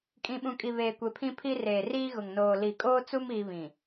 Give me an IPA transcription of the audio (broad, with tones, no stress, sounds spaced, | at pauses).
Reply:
kʼ ĩ˨ ɓ ũ˨ kʼ i˨ β eː˨ kʷ e˨ pʰ ĩ˦ pʰ i˦ r eː˨ r iː˦ ɣ ʊ˨ ŋ n oː˨ l i˨ kʼ oː˦ t͡s u˦ m iː˦ β ĩ˨